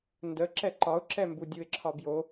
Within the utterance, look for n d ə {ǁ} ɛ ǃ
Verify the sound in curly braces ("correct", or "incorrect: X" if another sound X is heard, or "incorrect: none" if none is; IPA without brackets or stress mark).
correct